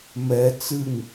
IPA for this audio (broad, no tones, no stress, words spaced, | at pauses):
mɛ t͡sɨŋ